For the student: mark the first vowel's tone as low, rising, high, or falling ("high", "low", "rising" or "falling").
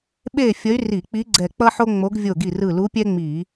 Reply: falling